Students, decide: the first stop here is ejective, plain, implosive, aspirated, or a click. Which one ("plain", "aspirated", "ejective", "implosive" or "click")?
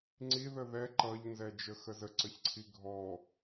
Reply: click